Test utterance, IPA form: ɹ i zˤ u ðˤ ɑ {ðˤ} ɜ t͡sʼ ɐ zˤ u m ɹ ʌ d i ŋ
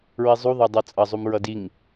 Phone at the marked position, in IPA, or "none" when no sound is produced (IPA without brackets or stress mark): dˤ